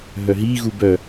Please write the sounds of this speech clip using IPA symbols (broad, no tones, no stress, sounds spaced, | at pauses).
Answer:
ɦ œ ɦ i ɣ u b œ